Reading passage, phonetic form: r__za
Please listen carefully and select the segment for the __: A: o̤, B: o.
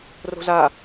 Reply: A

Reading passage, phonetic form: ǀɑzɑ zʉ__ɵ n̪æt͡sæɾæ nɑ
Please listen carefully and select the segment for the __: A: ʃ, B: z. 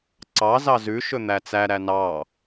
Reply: A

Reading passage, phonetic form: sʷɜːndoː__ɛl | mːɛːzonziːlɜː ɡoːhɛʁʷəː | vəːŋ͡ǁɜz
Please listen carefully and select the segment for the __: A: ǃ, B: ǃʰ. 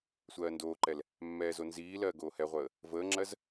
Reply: A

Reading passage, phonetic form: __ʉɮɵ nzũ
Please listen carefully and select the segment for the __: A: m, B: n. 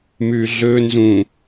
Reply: A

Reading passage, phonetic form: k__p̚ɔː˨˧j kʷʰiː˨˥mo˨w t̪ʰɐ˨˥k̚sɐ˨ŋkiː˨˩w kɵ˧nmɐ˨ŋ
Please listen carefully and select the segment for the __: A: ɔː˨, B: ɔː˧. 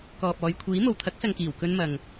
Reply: A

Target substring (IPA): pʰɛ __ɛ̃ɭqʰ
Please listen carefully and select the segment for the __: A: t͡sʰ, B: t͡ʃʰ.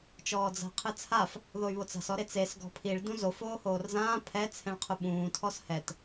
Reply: A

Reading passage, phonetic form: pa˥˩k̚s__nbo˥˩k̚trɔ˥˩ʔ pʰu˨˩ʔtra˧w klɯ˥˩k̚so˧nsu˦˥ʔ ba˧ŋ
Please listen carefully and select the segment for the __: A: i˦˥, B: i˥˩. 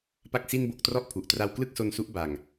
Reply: B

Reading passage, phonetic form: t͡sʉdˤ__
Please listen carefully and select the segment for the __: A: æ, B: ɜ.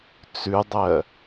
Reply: B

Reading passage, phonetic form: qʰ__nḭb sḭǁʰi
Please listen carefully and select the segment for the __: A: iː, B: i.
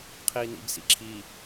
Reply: A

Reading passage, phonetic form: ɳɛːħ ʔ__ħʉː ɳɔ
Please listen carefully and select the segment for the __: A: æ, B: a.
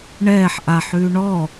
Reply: B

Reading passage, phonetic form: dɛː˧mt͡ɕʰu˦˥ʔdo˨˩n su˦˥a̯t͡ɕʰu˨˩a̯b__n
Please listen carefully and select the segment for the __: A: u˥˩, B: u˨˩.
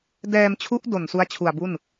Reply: A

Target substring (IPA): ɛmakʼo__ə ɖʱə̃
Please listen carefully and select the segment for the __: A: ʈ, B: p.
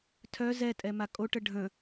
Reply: A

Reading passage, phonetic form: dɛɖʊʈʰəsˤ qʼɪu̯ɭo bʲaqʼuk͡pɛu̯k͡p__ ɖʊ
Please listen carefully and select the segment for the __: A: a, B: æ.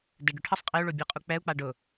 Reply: A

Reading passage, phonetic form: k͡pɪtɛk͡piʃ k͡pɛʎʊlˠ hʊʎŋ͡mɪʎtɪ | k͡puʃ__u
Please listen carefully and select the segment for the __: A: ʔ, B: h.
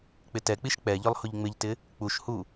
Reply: B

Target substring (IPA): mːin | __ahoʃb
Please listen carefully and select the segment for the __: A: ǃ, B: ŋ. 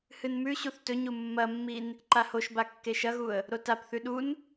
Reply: A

